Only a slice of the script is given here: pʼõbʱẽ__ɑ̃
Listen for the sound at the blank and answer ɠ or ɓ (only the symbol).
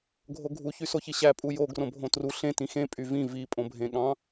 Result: ɠ